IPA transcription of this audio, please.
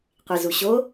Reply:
qʷ i z u ɕ o

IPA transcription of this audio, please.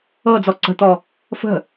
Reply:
ɤ d͡z ɔ ǀ ə̤ t̪ ɔ | f ə̤

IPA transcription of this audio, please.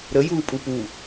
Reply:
ɾ ə j uː pʼ u p u

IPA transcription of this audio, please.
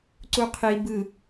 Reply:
ǀ u qʰ i b ɯ

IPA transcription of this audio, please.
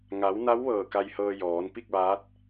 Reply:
ŋ a˩˧ w n a˧˥ w ʋ ɤː˧˩ k a˧ j h ɤː˧ j ɔː˩˧ n p i˥˨ k̚ ʋ aː˧˥ t̚

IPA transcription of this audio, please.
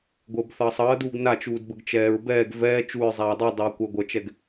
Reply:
ɡʷ əː b θ ʌː sˤ ʌː d uː ɡ n a t͡ʃ uː d b ə ɡ t͡ʃ ɛː ɹ b ɛː ɡ v ɛː t͡ʃ u ɹ zˤ aː dˤ u dˤ ʌː kʷ ʌ ɡʷ ʌ t͡ʃ ɛ ɡ

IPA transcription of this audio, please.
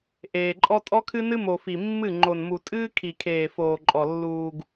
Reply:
ʔ eː˨ ǃʼ ɔ˦ tʼ ɔ˦ kʰ ɨ˦ n ɨ˦ m o˨ f i˨ mː ɨ˦˨ ŋ͡ǃ o˨ n m u˨ tʼ ɨː˦ kʰ i˨ kʰ eː˨ f oː˨ ǃʼ ɔ˨ lː uː˨ ɡ

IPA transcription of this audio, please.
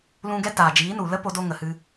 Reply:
l ũ˧ ɡ ɛ˦ t aː˨ d͡ʒ iː˨˦ n u˨ l ə˦ p o˧ d o˧ ŋ ə˨ h ɨ˧

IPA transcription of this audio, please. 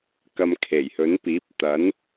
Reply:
k ɐ˧ m kʰ e˨˩ j h ɵ˨˥ n p iː˨˥ p̚ t̪ ɐ˨˥ n

